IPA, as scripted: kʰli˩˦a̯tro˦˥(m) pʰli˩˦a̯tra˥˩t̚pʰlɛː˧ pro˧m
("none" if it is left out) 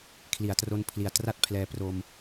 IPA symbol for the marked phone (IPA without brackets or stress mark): n